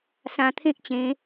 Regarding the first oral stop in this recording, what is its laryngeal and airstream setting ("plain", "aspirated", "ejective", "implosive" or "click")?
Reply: aspirated